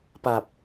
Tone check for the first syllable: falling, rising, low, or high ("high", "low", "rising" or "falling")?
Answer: low